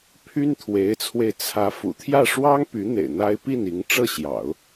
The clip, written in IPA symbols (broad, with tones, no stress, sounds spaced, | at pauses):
pʰ y˥ n t̪ʰ w e˧˥ ɪ̯ t͡sʰ w e˧ ɪ̯ t͡sʰ ä˧˥ f ṵ˨˩ t̪ʰ j ä˥˩ ʂ w ɑ˥ ŋ p y˧˥ n̪ ḛ˨˩ ɪ̯ n̪ a˥ ɪ̯ p i˥˩ n i˧˥ ŋ ʈ͡ʂ ɤ˥˩ ɕ j ɑ̰˨˩˦ ʊ̯